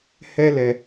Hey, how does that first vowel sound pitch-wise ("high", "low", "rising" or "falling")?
high